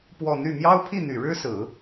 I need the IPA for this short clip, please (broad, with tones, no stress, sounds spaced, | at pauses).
p w ɔ˥˧ n̪ y˥˩ m j ɑ˥ ʊ̯ pʰ i˥˩ n̪ y˨˩ ɻ ɻ̩˥ s ɹ̩˨˩˦